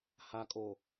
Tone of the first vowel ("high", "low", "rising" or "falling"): low